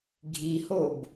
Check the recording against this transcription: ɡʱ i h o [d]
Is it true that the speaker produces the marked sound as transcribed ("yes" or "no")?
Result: no